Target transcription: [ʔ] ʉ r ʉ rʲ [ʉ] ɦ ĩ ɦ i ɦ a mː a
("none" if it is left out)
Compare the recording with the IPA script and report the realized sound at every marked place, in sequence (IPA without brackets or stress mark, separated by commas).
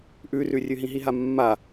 ʔ, ʉ